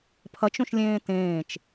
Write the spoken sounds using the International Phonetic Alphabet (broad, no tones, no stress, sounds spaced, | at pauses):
pʰ ɐ t͡ʃ õ ʃ lʲ ẽː t ẽː t͡ʃ